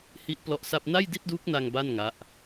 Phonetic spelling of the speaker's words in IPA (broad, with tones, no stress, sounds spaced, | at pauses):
h i˦˥ ʔ p l ɔ˦˥ ʔ s a˥˩ p̚ n a˥˩ j d i˥˩ t̚ d uː˦˥ k̚ n a˧ ŋ b a˥˩ n ŋ a˦˥ ʔ